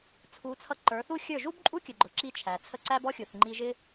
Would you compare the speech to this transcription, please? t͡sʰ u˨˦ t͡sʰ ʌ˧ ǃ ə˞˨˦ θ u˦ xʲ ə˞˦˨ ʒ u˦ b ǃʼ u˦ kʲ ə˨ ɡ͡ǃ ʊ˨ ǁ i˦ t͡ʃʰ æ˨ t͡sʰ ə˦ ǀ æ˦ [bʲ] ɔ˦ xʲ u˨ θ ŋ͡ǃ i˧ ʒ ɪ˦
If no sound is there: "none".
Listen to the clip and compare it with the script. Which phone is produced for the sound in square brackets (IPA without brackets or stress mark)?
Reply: b